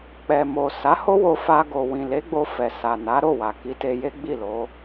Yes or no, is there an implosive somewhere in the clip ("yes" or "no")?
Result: no